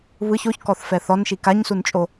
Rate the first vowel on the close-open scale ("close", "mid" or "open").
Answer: close